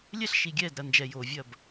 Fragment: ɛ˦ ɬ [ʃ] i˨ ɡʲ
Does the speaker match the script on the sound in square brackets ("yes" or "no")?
yes